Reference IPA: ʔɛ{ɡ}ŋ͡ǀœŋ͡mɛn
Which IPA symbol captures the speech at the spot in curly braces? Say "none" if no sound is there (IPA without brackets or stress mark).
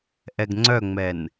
ɡ